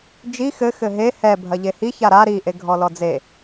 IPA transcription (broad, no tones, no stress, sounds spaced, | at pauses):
d͡ʒ i x ɘ x ɘ ɦ e h ɛ bʱ ɐ ʎ e h i ç a ɾ a ɾ i ʔ e ɡʱ ɔ l ɔ d͡z e